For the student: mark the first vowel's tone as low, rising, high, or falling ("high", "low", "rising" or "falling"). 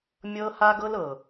high